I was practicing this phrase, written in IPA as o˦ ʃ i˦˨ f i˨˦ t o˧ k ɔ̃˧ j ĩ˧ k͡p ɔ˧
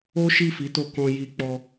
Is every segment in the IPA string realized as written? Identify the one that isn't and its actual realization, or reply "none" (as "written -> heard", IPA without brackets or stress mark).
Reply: ĩ˧ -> i˧